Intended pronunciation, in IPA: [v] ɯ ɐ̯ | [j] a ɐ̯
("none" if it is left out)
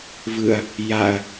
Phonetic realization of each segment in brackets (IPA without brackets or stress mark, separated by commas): v, j